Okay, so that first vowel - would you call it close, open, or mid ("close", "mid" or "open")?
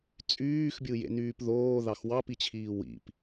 close